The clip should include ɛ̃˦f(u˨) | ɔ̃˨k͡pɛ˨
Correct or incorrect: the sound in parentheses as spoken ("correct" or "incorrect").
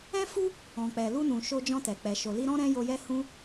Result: incorrect